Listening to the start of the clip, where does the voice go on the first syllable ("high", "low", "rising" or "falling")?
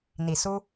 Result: low